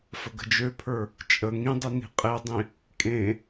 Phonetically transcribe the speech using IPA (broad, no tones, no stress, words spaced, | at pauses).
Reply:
fəɡə̤d͡ʒøpʰə˞ | t͡ʃʼə ŋĩdˤi ni̤qʼedˤĩ | kʼẽ